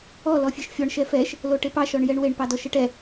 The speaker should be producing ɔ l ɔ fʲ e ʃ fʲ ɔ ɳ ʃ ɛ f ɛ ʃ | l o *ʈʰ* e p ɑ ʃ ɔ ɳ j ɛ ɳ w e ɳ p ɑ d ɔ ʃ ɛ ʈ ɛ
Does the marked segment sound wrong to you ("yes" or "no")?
yes